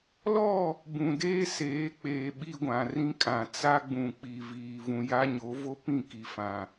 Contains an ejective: yes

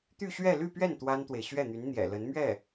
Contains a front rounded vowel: yes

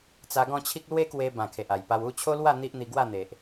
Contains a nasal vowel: yes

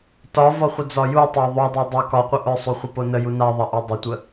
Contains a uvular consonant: yes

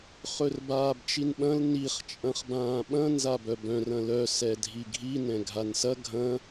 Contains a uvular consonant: yes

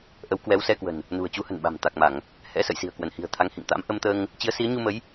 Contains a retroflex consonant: no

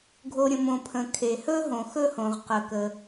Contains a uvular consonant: yes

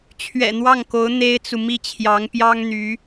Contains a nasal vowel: no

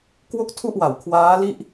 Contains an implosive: no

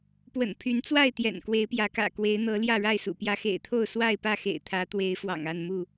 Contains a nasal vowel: no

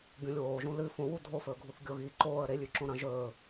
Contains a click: yes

